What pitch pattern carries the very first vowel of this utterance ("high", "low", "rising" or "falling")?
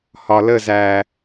low